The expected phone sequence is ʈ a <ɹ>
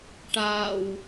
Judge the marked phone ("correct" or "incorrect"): incorrect